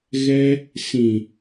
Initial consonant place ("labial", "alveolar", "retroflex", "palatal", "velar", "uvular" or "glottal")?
velar